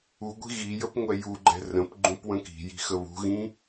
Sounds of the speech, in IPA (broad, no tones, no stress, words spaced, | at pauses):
uɡʷi̤ ɣijəp ŋʷɛjuɡ͡ǃɛ̤ rə̃pɡ͡ǃũp wə̃ki̤ji̤ xəβṳɣĩ